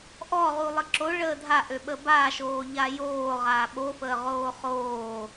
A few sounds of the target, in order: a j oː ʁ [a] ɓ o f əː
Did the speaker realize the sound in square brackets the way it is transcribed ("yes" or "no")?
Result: no